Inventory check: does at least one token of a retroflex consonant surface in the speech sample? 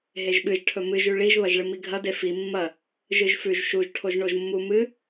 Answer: yes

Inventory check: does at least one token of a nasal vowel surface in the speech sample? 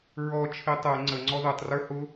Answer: no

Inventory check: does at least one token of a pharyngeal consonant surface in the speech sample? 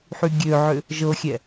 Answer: yes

